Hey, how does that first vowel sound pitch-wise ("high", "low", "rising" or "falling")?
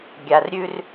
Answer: low